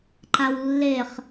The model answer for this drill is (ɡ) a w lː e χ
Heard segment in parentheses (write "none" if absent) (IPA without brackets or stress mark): ǃ